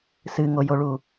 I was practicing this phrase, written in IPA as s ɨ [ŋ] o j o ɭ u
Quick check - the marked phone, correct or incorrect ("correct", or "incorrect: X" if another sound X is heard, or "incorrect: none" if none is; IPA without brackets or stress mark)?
correct